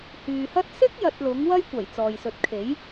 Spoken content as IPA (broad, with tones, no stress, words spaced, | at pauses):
hyː˨hɐ˥t̚ sɪ˥k̚ jɐ˧t̚lʊ˨˥ŋ wɐ˥jkʷɐ˨˩j t͡sɔː˨jsɵ˨˥t̚kʰe˨˥j